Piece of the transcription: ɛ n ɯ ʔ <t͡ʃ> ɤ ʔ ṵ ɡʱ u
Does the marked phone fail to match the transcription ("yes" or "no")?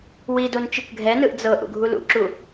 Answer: yes